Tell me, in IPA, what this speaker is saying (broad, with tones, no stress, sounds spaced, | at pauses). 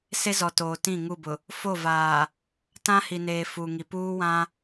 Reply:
s e˦ z ɔ˨ t oː˨ t ĩ˦˨ ŋ u˦˨ b ʊ˨ | f o˦˨ v aː˨ | t ã˦ h i˨ n eː˨ f uː˨ ŋ i˨ p uː˦ w ã˦